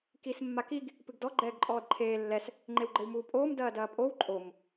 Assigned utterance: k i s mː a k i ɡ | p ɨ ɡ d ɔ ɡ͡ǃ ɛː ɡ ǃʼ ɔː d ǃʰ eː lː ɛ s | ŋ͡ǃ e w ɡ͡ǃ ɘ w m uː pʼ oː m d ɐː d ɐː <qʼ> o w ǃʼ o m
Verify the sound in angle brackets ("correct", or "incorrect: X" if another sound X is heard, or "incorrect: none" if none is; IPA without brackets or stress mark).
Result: incorrect: pʼ